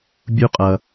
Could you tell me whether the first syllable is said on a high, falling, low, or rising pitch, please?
high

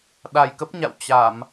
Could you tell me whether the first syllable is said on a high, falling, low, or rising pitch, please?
low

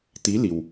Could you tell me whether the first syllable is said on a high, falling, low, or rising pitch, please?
rising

